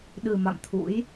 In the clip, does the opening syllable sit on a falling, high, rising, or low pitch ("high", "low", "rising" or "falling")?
low